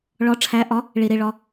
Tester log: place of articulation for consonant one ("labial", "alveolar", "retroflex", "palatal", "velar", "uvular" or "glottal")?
retroflex